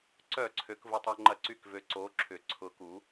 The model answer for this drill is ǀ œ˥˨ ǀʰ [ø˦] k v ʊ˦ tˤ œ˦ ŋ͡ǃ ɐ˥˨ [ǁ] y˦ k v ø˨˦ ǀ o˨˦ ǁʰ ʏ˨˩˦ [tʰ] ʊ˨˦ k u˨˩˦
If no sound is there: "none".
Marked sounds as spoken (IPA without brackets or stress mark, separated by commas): ø˨˦, ǀ, ǀʰ